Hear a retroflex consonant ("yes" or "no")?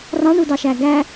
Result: yes